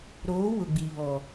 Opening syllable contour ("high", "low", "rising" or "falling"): rising